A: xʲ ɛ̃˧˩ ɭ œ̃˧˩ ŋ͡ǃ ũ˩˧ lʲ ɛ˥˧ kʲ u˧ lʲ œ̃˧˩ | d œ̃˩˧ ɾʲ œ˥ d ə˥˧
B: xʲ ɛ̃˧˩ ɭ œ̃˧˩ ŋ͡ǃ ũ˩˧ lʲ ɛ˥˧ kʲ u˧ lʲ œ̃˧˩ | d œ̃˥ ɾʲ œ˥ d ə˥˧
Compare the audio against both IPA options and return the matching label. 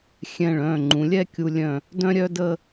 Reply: B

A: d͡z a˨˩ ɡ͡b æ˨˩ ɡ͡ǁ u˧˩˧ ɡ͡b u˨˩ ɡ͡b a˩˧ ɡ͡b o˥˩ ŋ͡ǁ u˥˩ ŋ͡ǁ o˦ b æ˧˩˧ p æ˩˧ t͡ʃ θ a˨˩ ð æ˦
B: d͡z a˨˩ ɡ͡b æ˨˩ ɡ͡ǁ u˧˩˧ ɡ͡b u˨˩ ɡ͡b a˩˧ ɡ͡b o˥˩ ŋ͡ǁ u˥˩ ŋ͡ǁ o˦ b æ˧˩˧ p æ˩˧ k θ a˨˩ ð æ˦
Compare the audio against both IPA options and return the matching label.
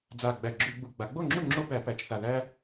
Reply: A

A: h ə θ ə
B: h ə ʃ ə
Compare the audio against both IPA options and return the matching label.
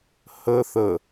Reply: A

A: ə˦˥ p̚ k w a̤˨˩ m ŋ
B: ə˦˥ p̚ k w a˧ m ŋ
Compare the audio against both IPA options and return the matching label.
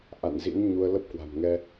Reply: A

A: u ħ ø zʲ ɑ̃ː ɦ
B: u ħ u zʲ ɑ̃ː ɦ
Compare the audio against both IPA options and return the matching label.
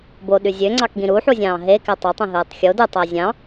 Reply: B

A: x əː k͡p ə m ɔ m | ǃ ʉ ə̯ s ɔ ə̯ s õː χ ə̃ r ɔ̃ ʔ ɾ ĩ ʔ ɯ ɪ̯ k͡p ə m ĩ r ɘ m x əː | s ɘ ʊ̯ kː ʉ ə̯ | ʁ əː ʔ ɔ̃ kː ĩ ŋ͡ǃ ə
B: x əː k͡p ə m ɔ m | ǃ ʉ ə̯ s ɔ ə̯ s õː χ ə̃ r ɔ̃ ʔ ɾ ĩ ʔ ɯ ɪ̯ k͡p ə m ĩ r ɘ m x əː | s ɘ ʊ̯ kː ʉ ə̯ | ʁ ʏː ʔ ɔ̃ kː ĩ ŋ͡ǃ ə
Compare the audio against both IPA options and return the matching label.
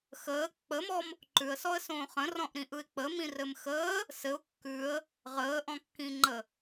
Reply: A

